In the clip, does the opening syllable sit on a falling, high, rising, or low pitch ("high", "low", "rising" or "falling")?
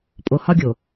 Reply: low